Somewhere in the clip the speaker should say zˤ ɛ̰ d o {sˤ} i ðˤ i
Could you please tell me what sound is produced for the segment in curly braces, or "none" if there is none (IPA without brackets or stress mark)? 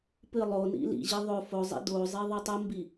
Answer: zˤ